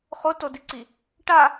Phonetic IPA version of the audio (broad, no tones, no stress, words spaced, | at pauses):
χotodiǀi | ʈa